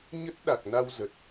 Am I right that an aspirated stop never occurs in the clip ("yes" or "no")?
yes